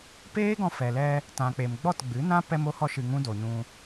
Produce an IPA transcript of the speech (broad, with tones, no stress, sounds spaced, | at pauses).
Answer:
p eː˦ ɡ ɔ̃˧ f ɛ˨ l ɛ˧ | t ã˨ k͡p e˨ m ɡ͡b ɔ˦˨ t ɡ͡b ɨ˨˦ n ã˦ p ɛ˦ m o˦ h ɔ˦ ʃ ɨ˧ ŋ ũ˦ d o˨ ɲ ũ˧